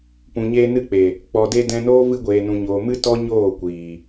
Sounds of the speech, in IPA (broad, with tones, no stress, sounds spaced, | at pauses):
p ũ˨ ɲ eː˧ n ɨ˧ k͡p e˨ | k͡p ɔ˨ d e˧ d ɛ̃˧ n oː˦ v ɨ˧ ɡʷ eː˨ n ũ˨ ɲ oː˨ m ɨ˦ t ɔ˦ ɲ oː˦˨ kʷ iː˨